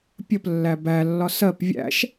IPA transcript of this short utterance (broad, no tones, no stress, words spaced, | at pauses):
pʲəplːæ bælːɒ sɜp vʲæ̰ʃ